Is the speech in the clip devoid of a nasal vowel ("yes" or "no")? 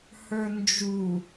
yes